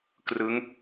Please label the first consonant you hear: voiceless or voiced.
voiceless